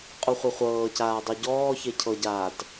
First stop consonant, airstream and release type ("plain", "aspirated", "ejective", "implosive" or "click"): ejective